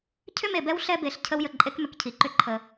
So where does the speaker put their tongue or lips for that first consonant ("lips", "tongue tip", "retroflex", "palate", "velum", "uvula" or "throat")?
palate